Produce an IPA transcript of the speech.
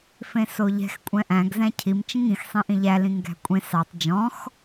fẽsoʎɛ̤x kʷʼɛ̃ʔæ̃ɡ zæ̃cʰim t͡ʃĩŋĩx sˤẽʔĩʎæ lĩŋɡæ̤kʷʼẽ sɑtˤ d͡ʒɔ̃x

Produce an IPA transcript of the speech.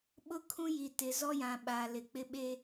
ɓʊ˦kʰũ˦ji˨ tɪ˨zɔ˦jã˨ ɓa˨lɪ˨k͡pɪ˦ ɓe˦

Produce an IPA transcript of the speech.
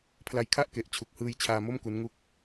pʰla˧jkʰa˥˩ʔ ke˨˩ʔt͡ɕʰu˨˩k̚hɯː˧jt͡ɕʰaː˧ mo˥˩mku˦˥nŋu˦˥k̚

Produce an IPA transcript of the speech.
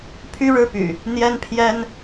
pʰy˦ɻɻ̩˦py̰˨˩ | n̪jɛ˦npʰjɛ˦n

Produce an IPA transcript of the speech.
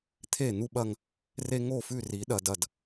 t̪ʰe˦˨n̪u˦ɓɐ˦ŋ | re˦ŋo˦˨fʉ˦˨ri˨˦ ɗɐ˨dɐ˨d

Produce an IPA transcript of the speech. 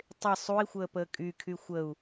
tˤɪ sˤui̯xʷəːpəː kʼykʰy xʷəu̯

